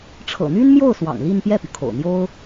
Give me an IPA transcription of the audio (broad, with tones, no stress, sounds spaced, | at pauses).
ʈ͡ʂʰ ɤ̰˨˩ n̪ y˥ n m j o˥˩ ʊ̯ s w ɑ̰˨˩ ŋ l i˥˧ n p j ɛ˥˩ p y˩ kʰ o̰˨˩ ʊ̯ n̪ j o˥ ʊ̯